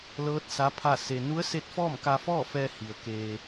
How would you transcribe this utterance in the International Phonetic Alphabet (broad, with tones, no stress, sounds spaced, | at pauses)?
l ɤː˧˥ t̚ s a˧˥ pʰ a˥˨ s e˧ n u˧˥ ə̯ s e˧˥ t̚ f ɔː˥˨ m k a˧ f ɔː˥˨ f ɛː˧ h i˩ ə̯ k eː˧